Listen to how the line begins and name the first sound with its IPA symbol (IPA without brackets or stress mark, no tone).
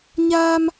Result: ɲ